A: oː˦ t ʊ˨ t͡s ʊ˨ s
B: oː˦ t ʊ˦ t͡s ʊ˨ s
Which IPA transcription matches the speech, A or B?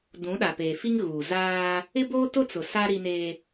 B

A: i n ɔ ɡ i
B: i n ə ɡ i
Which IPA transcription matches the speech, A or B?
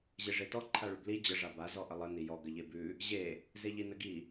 B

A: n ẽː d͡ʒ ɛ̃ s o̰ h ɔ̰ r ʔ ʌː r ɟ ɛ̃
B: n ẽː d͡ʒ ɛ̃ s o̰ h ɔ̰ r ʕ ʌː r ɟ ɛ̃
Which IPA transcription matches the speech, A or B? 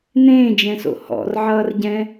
B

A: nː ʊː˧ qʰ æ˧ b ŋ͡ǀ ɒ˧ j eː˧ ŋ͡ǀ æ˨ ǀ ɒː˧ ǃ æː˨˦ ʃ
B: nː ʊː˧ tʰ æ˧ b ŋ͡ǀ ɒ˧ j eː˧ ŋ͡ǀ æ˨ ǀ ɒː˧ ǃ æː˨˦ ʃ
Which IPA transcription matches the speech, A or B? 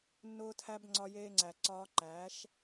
B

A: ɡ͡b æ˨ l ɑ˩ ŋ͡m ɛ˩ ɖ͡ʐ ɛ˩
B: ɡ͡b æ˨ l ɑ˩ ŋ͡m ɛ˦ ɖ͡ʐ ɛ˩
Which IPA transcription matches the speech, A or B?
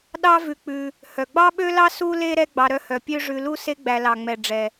A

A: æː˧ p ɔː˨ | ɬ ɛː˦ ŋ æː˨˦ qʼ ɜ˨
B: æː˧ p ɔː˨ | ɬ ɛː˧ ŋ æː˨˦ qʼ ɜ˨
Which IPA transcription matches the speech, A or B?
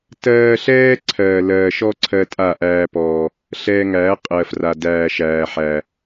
B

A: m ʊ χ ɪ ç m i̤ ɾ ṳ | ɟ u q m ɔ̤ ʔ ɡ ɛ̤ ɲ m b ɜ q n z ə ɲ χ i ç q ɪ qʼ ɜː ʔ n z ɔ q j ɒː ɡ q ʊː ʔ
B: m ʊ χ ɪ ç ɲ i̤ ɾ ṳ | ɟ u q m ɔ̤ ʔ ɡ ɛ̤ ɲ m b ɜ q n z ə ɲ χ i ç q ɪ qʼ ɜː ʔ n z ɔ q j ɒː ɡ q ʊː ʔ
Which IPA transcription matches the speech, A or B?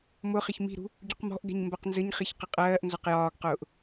A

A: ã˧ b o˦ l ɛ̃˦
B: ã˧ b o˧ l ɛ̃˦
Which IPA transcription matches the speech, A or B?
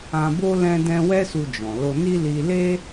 A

